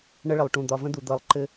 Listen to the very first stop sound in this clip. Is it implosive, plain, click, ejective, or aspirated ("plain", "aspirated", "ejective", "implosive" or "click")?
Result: plain